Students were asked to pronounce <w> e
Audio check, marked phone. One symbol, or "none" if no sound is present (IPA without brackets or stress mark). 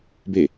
b